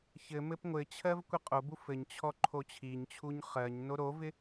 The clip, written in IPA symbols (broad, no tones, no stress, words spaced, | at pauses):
çɘ mɘpŋʷɘt͡ɕʰɜv kʷɛqʼobu fɘɲt͡ɕʰɔ ǃʰot͡ɕʰiɲt͡ɕʰuɲ χɜɲ noɾovɪ